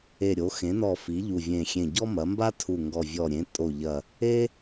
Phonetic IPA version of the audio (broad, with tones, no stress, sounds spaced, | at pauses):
e˨˩ ɾʲ o˩˧ x ẽ˩˧ n ɔ˨˩ f i˩˧ ʎ u˨˩ vʲ ẽ˨˩ xʲ ẽ˨˩ ɟ ɔ˦ m ɐ˩˧ m b a˦ tʰ u˨˩ ŋ ɡ ɔ˨˩ vʲ ɔ˨˩ ɾʲ ẽ˩˧ tʼ o˨˩ ʎ ɐ˨˩ | e˦